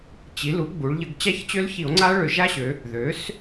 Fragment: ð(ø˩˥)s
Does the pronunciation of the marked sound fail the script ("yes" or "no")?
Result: no